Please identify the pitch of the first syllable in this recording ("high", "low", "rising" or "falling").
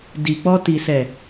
low